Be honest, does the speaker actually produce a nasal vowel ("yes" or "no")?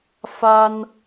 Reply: no